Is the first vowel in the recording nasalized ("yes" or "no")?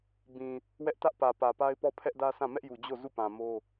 yes